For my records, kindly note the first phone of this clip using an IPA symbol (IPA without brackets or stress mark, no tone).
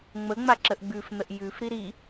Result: ŋ͡m